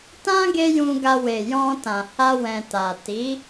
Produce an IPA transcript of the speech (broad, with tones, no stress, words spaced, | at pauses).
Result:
tã˦ ɡe˦jũ˧ɡa˧ we˨ jɔ̃˧tã˨ ha˧wɛ̃˨ta˨ ti˨˦